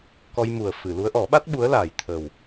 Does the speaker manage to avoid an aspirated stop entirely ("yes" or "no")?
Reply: no